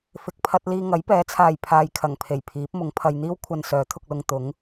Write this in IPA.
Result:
fɪ˨k̚pʰɐ˧t̚ liː˧ŋɐ˨˥jpɛː˨˥t͡sʰaː˨j pʰaː˨jkʰɐ˨˩ŋpʰe˨˩j pʰiː˨˥p̚mʊ˨˥ŋpʰɐ˧j n̪iː˥wkʷʰɐ˧n sœː˨˥t̪ʰʊ˧k̚lʊ˧ŋ t̪ʊ˨˥ŋ

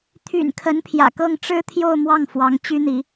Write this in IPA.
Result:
t̪ʰy̰˨˩n kʰə˧˥npʰjä̰˨˩kɤ˥˩ŋ ʈ͡ʂɻ̩˥t̪ʰjo˥˧ʊ̯mwɑ˥˩ŋ fwɑ˧˥ŋt͡ɕy˥n̪i˧˥

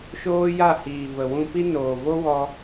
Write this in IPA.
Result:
ʃoː˦ja˦˨hiː˨və˨ wũ˧pi˦noː˨ vo˦wɔ˧

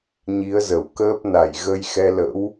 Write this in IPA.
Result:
ɲi˨˦ə̯zə˧˩wkəː˦˥p̚ na˧˩jɣə˧j xɛ˧lə̰˧˥w

